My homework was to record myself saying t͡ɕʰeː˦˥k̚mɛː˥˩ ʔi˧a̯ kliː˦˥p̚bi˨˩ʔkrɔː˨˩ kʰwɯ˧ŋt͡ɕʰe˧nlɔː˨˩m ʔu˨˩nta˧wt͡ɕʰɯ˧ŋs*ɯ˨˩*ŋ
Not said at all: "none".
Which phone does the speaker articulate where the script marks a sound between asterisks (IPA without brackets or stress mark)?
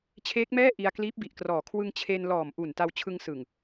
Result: ɯ˨˩